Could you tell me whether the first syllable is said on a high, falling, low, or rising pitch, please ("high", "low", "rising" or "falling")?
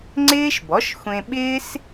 high